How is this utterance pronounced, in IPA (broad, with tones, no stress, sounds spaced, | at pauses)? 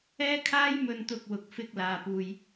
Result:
ɛː˥ kʰ aː˥ j m ɵ˧ n t̪ ʊ˧ k̚ w ʊ˨˥ k̚ f ɪ˧ k̚ l aː˨ p uː˨ j